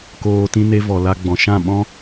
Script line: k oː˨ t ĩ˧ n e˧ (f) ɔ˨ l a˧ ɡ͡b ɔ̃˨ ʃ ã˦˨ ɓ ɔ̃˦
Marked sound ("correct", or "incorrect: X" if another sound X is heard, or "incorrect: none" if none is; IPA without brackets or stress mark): incorrect: v